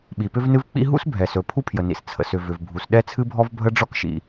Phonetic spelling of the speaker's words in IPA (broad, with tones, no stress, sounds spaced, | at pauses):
ɓ i˩ p ʏ˥ v n ɨ˥ v k͡p ḭ˥ ɦ ṵ˥ s bʱ ɛ˩ s ɵ˩ pʰ u˥ pʰ j ə˩ n ḭ˩ s t͡sʰ ə̰˩ s ʏ˩ v ʏ˩ v bʱ u˩ s ɗ ɛ˥ t͡sʰ ɨ˥ bʱ ɔ˥ v bʱ ə˥ ɖ͡ʐ ɔ˥ k ʃ ḭ˩